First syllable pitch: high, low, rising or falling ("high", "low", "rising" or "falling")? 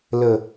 low